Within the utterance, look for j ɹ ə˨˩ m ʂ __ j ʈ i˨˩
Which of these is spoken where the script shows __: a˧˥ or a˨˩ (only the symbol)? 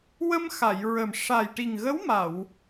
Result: a˨˩